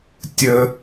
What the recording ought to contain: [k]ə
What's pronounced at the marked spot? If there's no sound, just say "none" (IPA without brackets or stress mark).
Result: tʲ